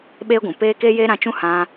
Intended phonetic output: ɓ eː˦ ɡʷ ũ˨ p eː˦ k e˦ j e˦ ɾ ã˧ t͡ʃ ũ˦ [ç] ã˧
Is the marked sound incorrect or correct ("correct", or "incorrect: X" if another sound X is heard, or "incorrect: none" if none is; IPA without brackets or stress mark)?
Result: incorrect: h